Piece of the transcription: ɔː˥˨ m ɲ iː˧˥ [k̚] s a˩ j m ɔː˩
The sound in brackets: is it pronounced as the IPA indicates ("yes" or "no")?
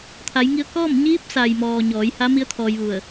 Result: no